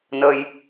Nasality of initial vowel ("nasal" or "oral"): oral